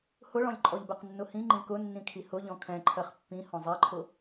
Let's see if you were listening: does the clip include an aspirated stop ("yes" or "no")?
yes